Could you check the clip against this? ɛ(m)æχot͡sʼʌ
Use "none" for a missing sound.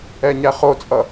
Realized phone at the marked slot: ɲ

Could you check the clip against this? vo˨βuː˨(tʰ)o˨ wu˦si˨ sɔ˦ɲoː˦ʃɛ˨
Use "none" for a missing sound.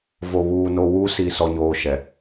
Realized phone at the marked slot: n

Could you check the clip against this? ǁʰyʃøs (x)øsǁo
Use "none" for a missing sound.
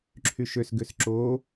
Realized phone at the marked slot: ɡ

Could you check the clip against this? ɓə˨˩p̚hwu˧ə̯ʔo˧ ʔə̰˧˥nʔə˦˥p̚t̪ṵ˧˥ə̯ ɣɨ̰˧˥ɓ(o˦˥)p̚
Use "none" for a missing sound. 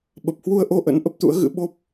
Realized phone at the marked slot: o˦˥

